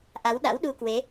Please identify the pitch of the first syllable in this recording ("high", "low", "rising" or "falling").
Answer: rising